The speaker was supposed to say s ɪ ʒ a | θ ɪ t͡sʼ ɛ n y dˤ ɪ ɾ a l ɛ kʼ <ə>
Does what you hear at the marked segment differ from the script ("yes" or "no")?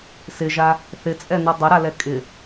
yes